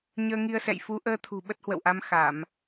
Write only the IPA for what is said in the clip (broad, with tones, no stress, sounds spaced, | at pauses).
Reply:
ɲ əː˧ ŋ i˧ ə̯ s ɛ̰˧˨ j f u˨˦ ʔ əː˧ t̪ʰ ṳ˨˩ ɓ ə˦˥ t̚ h w ə̰˧˨ w ʔ a˧ m x a˧˩˨ m